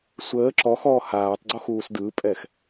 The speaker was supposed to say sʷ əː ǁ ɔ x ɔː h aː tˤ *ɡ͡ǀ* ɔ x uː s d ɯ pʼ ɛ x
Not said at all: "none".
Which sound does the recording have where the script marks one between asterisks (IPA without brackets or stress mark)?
ɡ͡ǀ